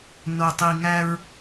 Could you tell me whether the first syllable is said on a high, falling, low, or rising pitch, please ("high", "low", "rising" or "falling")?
low